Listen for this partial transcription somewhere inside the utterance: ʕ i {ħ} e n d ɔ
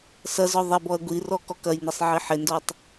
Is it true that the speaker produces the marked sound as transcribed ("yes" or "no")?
yes